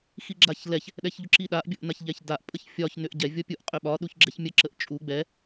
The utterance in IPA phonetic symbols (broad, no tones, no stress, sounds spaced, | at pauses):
x i ɡ͡ǁ a ç l ɛ ç | ɗ ɛ ç ʎ ʊ ǁ i ɗ a ʔ bʲ ʊ ʔ n a ç ʎ ɛ ç d a ʔ pʼ ə ç fʲ ɒ ç n ʏ ʔ ɟ ɛ vʲ ɔ pʲ u ʔ qʼ ʏ ɓ ɒ ɗ u ç ɡ͡ǁ ɛ ç mʲ ə ǁ ə ʔ t͡ʃʼ u ɡ͡b ɛ